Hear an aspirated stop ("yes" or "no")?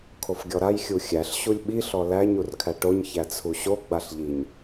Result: yes